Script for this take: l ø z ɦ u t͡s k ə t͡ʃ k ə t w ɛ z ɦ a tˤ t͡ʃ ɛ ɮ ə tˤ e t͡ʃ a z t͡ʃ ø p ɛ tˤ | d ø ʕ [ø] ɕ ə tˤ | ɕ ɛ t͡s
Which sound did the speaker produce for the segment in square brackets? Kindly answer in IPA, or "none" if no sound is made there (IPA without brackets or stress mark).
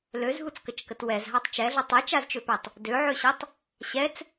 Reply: ø